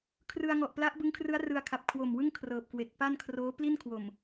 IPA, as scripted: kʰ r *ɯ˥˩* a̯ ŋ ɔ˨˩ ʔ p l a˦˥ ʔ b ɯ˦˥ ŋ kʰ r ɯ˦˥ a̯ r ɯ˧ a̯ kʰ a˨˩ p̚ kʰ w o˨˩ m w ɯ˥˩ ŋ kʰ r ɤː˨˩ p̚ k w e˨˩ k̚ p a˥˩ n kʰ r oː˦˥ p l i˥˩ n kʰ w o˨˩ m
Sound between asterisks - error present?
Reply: yes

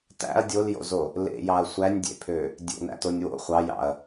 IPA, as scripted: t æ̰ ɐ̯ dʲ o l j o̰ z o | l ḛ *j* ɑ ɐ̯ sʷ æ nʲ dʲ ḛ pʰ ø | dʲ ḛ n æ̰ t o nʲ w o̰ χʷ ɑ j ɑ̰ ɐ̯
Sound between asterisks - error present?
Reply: no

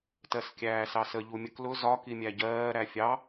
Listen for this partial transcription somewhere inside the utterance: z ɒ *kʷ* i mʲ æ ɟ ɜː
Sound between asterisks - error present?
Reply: yes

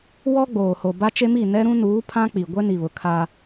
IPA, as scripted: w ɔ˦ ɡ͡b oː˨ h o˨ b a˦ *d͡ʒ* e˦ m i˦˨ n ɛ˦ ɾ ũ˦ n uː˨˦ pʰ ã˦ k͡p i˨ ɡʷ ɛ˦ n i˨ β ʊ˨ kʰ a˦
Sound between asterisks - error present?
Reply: yes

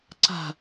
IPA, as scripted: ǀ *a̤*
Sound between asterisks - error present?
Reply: no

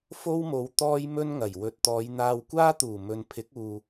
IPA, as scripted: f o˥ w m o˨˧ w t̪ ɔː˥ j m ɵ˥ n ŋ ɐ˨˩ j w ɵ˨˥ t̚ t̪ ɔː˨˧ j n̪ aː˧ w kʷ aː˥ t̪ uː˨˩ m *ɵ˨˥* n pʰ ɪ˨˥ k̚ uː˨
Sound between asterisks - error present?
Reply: yes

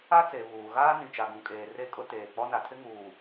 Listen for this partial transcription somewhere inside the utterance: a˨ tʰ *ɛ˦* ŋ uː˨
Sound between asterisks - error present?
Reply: yes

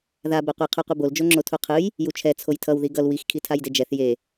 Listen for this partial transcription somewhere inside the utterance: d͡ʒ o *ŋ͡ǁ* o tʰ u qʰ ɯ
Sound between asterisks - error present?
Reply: no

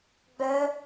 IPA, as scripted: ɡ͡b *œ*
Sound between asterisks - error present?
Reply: no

